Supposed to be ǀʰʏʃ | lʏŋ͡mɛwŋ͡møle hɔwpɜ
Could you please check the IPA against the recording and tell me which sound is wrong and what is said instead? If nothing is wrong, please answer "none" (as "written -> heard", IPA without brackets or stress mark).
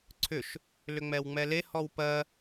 ø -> ɛ